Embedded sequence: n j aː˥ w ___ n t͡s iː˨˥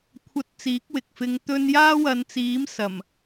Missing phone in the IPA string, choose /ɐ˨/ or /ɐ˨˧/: ɐ˨˧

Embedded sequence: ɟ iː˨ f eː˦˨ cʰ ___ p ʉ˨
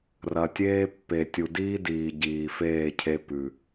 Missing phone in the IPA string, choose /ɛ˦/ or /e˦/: e˦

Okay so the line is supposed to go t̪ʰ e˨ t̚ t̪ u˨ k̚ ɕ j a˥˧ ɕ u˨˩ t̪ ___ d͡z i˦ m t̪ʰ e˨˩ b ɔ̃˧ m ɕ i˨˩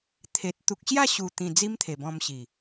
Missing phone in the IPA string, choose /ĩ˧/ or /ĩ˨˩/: ĩ˨˩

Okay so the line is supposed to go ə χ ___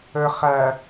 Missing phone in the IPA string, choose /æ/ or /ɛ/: æ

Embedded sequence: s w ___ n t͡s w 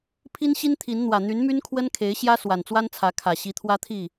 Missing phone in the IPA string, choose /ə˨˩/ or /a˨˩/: a˨˩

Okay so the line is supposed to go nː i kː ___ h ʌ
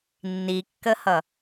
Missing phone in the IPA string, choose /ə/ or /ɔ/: ə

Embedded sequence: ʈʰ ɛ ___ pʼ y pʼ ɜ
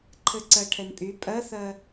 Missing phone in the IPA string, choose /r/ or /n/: n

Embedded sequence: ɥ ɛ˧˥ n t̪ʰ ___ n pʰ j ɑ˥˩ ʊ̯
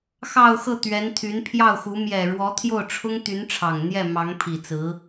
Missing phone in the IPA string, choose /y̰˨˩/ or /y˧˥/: y˧˥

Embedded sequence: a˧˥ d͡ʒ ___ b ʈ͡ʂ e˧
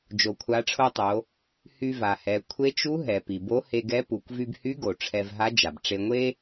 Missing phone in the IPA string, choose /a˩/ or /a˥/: a˩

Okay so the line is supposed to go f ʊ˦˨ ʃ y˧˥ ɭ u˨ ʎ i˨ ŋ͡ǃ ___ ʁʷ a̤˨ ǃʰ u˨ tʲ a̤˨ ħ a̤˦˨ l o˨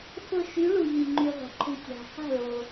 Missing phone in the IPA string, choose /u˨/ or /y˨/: y˨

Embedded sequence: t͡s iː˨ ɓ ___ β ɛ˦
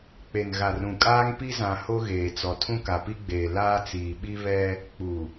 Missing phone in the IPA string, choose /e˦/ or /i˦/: i˦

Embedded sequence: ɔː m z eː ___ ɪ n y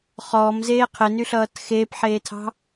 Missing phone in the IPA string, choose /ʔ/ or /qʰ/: qʰ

